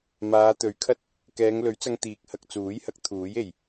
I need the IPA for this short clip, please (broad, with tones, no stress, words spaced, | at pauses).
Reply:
maː˨˧t̪ɵ˨˥ɥ kʰɐ˧t̚ | kɛː˨˧ŋlɵ˨˥ɥt͡sɐ˧ŋ t̪iː˨k̚hɐ˧k̚t͡suː˨˥jhɐ˨˥k̚ t̪ʰuː˨˥je˨˩j